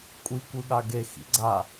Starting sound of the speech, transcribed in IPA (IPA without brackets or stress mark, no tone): kʷʼ